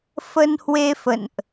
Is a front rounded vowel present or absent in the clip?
absent